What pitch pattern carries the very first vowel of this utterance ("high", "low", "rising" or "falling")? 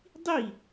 falling